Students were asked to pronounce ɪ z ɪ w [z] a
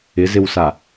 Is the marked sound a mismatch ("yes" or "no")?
yes